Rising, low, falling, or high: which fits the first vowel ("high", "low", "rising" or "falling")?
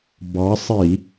rising